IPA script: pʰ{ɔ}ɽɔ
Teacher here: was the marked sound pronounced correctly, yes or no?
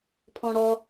no